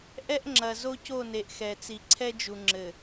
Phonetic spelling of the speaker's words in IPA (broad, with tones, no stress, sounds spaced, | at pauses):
ʔ ɛ˦ ʔ ŋ͡ǁ ɐ˨ z o˦ c o˦˨ n e˨ ʔ x ɛ˨ t͡s i˨ ǀʰ ɛ˦ d͡ʒ u˨ ŋ͡ǁ ɘ˨